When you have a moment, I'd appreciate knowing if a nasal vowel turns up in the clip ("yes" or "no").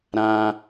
yes